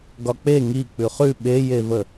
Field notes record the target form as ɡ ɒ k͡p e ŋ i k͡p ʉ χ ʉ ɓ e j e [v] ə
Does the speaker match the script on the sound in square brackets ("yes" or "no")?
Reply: yes